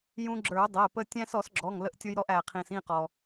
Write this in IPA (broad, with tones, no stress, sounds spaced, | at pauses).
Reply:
j ũ˧ ɡ͡ǁ ə˞˨˩˦ ʊ̯ dˤ ɛ˩˧˩ p ə˧ tʲ æ̃˧ s ɔ˨˩˦ s ɡ͡ǁ ɔ˩˧˩ ŋ l ə˧ ʔ tʲ ʊ˧ j ɾ ɔ˧ ʔ æ˩ qʰ ĩ˩ s ĩ˥˩ q ɔ˩